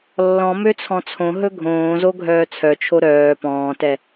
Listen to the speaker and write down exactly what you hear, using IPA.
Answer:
lːɔ̃ møt͡sʰɔ̃t͡sʰõ ɦɵɡʱõːzo ɡʱœːt͡sʰœt͡ʃʰo ɾœː pɔ̃ːtɛ

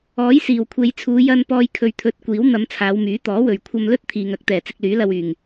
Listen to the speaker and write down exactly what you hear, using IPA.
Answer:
ɔː˨˥jsiː˨˩wkʷʰe˨˧jt͡sʰuː˨˧ jɐ˧n pɔː˧jkʰɵ˨ɥt̪ʰɵ˨˥t̚kʷiː˨˥w n̪ɐ˨˧m t͡sʰaː˨˧wmyː˨˥t̪ɔː˨˥wɵ˨ɥ kʷʰɐ˧mlɵ˥t̚ t̪ʰiː˨ŋɐ˨˥k̚t̪ɛː˨˩ t͡sɪ˧k̚lyː˨˥lɐ˧wyː˨˩ŋ

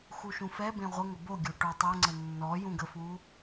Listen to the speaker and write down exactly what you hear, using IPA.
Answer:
xuʃũfɛbẽ ʁʷə ŋəboɡʲo ʈotˤɜŋ͡ǀə nːɔ jũɡəfu

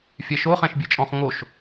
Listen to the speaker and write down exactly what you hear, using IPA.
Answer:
fʲɛʃo χɛ̃ʃbʲet͡ʃʼɔ̃χ ŋoʃ

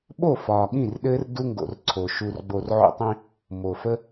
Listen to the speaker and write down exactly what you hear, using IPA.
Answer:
ɓo˦˨fɒː˨ɠĩ˦˨rɗɘː˧r du˦ŋɡo̰˨rǀʰo˨ ʃu˨rɡ͡bo˨r ʕo̰˦tˤĩ˦ | mo˨fə˦

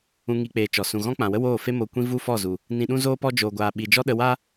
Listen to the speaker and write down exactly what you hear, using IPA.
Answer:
ũ˦ŋi˦k͡peː˧t͡ʃɔ˨ sũ˨ɣɔ̃˦k͡pã˨wə˦ woː˦˨fe˦ mo˧kʷĩ˦ vu˦fɔ˦˨zu˨ | nĩ˧ɗũ˦zoː˦pɔ˦ d͡ʒo˧ɡʷaː˧ɓi˧ d͡ʒɔ˦ɗə˧wa˦

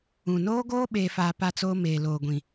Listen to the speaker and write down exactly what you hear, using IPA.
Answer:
ũ˨noː˦ɡoː˦ ɓeː˦faː˦ pa˦t͡soː˦ meː˨loː˨ɡʷĩ˨

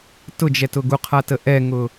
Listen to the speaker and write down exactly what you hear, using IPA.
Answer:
tʊd͡ʒɛtʊ ɡuqʰatə ʔɛŋʊ

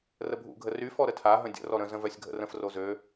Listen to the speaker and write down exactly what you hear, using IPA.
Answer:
rəbʱṵɡʱə ry fɔɾətʰaɦə̃ dʲə̰ rɔɾə̃zə̃ vœsʲɡʱə̰rə̃fro zø

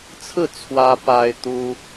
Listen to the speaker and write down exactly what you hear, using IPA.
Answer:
t͡sʰɹ̩˥˩ t͡sʰwä˥ pa˥ɪ̯t̪u˥

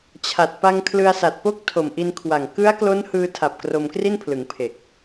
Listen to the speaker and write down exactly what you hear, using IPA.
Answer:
t͡ɕʰa˨˩t̚pa˧ŋ kʰlɯ˧a̯sa˨˩t̚po˥˩k̚ tʰo˨˩mʔi˧nkʰwa˨˩ŋ kɯ˦˥a̯klo˦˥n hɯː˧tʰa˨˩p̚ kro˧mkri˥˩npʰlɯ˩˦ŋ pʰe˨˩k̚

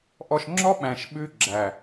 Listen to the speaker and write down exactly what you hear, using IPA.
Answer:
ʔɔ˧ʃŋ͡ǁɔ˦ɓæ̃˨ʃ ɓʉ˧ɡ͡ǁæ˨

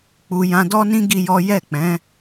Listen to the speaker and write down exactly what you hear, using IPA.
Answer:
k͡pu˧ jã˧dɔ˦nĩ˦ ɡi˦jɔ˦ jɛ˦˨k͡pɛ̃˨˦

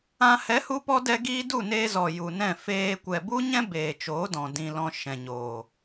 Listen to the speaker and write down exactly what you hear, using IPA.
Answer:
ã˧ hɛ˨˦hu˧ pɔ˦ dɛ˦ɡiː˦ du˦˨neː˧ zɔ˨ ju˨nɛ̃˦˨ feː˧ kʷɛ˨bu˦ɲɛ̃˦ beː˨t͡ʃoː˨˦dɔ̃˨ dĩ˧lɔ̃˧ ʃɛ̃˨ɲoː˨

